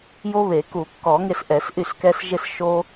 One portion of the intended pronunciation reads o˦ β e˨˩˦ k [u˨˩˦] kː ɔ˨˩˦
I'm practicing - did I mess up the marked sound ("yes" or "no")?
no